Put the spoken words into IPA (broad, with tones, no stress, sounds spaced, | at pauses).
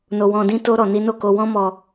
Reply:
n o˧ w ɔ̃˧ d ĩ˦ t o˦ ɾ ɔ˧ n i˦ n o˦˨ k o˧ w ɔ̃˦ m ɔ˧